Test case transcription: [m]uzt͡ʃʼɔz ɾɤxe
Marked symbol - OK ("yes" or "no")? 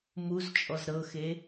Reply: yes